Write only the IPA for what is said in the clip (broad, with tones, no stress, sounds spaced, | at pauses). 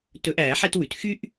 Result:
t ɵ˨˩˦ ʔ æː˨˩˦ ħ ɛ˦ t w ʉ˩ t x y˦ ʔ